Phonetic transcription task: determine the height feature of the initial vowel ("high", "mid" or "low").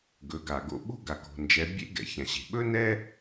mid